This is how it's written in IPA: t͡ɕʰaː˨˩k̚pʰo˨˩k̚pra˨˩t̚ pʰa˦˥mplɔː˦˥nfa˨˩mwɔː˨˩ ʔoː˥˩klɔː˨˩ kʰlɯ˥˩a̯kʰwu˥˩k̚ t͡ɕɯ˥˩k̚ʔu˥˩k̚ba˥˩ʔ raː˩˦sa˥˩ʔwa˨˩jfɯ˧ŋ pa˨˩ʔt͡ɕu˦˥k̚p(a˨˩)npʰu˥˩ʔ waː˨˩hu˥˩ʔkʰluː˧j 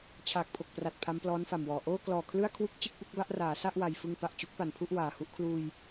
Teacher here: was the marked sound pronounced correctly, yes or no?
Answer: yes